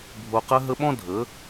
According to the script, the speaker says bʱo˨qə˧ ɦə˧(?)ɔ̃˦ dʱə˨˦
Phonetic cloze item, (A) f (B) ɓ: B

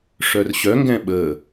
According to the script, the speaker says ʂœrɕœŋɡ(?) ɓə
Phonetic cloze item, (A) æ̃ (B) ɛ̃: B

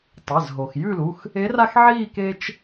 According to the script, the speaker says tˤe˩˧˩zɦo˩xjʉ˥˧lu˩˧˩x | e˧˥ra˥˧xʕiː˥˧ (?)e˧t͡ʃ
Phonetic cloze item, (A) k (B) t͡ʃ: A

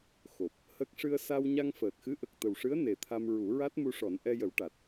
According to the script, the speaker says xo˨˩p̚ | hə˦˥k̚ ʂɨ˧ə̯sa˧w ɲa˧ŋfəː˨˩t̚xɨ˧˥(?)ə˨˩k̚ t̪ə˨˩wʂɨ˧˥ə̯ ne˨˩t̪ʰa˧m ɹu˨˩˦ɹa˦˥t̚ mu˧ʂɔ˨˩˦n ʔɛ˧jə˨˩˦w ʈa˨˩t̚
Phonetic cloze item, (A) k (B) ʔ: B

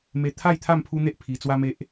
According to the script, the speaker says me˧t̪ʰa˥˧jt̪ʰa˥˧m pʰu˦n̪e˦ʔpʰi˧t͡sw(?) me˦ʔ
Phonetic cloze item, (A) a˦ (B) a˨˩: A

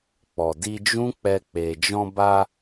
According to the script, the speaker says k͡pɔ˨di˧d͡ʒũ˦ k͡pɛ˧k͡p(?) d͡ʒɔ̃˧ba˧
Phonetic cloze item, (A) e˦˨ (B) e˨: B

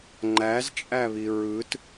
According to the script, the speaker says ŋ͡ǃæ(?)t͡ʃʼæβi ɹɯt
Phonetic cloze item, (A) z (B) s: A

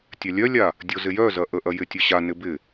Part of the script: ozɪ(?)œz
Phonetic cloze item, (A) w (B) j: B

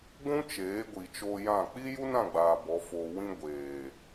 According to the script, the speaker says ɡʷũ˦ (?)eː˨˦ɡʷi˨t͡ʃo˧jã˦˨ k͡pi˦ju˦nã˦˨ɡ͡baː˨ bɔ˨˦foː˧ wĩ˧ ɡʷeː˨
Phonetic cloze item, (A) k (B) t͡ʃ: B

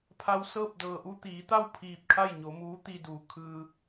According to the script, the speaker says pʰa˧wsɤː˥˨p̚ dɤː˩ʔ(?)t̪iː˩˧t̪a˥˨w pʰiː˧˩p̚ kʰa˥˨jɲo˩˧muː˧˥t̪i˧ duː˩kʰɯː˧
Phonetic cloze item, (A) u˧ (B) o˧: A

